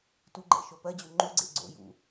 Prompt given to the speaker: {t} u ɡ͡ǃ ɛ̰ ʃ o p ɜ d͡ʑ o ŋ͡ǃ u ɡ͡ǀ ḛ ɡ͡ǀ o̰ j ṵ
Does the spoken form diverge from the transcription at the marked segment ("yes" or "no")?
no